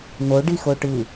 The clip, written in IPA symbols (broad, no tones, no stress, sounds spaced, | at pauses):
n o ɖ i x o ʈ ɯ